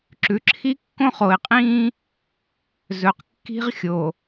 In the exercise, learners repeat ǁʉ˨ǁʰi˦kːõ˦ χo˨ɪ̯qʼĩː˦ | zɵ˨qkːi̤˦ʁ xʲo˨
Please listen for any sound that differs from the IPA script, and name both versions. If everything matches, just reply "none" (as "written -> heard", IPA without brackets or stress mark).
none